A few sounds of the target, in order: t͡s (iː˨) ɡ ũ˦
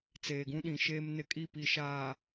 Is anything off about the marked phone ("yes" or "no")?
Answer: yes